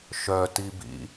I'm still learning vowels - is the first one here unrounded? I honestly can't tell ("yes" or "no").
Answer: no